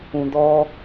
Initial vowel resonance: nasal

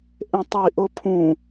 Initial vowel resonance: nasal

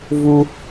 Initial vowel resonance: oral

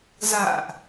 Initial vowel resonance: oral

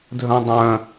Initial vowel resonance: nasal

